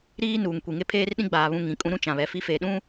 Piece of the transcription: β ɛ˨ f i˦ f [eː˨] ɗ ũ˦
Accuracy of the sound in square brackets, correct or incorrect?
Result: correct